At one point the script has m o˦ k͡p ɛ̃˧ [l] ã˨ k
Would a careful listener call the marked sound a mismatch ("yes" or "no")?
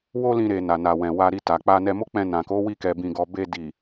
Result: yes